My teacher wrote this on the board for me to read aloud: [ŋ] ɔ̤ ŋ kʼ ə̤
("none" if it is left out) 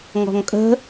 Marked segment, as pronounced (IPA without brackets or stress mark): ŋ